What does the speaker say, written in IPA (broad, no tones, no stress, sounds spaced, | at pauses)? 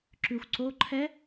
ǁ ʉ xʷ ǀ o ǃʰ ɛ